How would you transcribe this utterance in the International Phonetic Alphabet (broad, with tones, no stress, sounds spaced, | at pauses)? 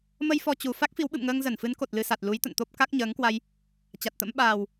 m ə˧ j f ɔ˧ t͡ɕ u˨˩ f a˦˥ k̚ f i˨˦ w ɓ ɨ̰˧˨ m ŋ əː˧ ŋ z ə˧˩ n f ɨ˨˦ n k o˨˩ t̚ l ɨ˧ s a˨˩ t̚ l u˨˦ j t̪ ə̰˧˨ n t̪ o˦˥ p̚ k a˦˥ k̚ ɲ əː˨˦ ŋ k w a˧ j | t͡ɕ a˨˩ t̚ t̪ ə̰˧˥ m ɓ aː˨˩ w